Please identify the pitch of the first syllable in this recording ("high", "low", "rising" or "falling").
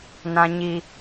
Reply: high